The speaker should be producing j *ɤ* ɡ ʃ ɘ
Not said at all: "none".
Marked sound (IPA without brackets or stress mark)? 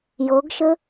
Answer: ɤ